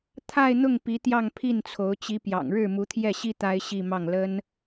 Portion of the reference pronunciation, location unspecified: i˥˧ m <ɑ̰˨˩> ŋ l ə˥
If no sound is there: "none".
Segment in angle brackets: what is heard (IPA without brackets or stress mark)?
ɑ˥˩